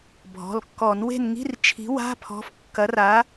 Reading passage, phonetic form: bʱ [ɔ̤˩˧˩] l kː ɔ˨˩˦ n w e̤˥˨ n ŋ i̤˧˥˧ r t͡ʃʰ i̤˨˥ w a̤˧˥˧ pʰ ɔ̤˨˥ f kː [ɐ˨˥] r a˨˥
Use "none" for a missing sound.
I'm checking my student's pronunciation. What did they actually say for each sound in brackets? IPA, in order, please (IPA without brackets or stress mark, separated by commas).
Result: ɔ̤˩˧˩, ɐ˨˥